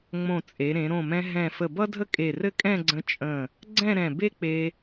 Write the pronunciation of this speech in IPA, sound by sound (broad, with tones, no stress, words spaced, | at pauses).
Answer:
ŋ͡mõ˧˩t͡sʼe˩˧ɾẽ˩˧ ɾõ˧˩mɛ̃˧ ɦɛ̃˧˩ fə˧˩bʌ˥dʱə˥ kʼe˧˩rɘ˥ kʼɛ̃˥˧ɡ͡ǀə̃˧ t͡ʃʼə̃˧˩ | ɡ͡ǀɛ̃˥˧ɾɛ̃˧˩ be˥k͡pe˧